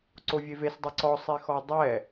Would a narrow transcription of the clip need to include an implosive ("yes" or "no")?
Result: no